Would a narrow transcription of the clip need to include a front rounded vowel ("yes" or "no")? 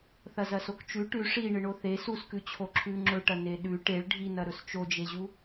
no